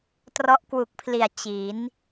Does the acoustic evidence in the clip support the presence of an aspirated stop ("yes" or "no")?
yes